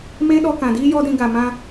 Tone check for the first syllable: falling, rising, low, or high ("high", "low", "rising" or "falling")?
high